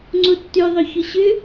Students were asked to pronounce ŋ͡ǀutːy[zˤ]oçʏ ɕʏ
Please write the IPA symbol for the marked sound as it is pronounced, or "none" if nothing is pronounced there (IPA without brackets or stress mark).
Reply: ðˤ